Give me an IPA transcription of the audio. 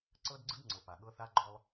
ǀɤ˦dɡ͡ǀɯ˦dŋ͡ǀɤ˨ pa˨ɠɤ˦θa˦ ɡ͡ǃɔ˦lˠ

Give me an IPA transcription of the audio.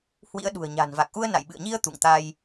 hwḭ˧˥ə̯ ɗṳ˨˩ə̯ɲa̤˨˩nva˨˩k̚ʔu˧ə̯ na̰˧˨jɓɨ̰˧˨ə̯ɲi˧ə̯ t̪ṵ˧˨ŋt̪a˧j

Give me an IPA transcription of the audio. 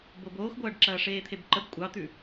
boboːxɡʷɐːɖ ǁɐːʂeːt̪ʰebǃəb kʷʼɑt̪ʉ

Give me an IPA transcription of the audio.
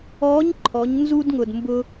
ɔː˧˥ɲ ǃʰɔ˩˧ɲnzu˧dŋʊ˩d mbʊ˧

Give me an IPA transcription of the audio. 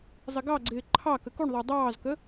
zˤɪɡɑɡ͡ǀɪː ǃʰɑ kəkuɳðˤə˞ dˤɑːzkə

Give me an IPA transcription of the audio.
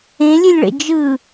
ẽlʲɨlʲɭḛ d͡ʒɯ

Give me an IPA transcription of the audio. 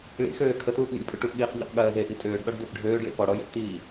ɭḭxøː kʰətuːp lʲḛlʲpʼuʈupɠiːq ʎṵqɠɜːzeʔi tʼøːɖɗɔɖ døpɖʱøːɖɭḭ pɔɽɔ jə̰ptiː

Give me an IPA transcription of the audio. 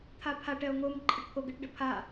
t̪ʰapʰaʈ ɛo̯ŋom ǃʼəʈpʰoɡəʈ ɖəpʰa

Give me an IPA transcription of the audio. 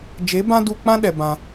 d͡ʒe˨˦bã˦ du˧k͡pã˦ ɗɛ˧bã˧

